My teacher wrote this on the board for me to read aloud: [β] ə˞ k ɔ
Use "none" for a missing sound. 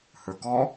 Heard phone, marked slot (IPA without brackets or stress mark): h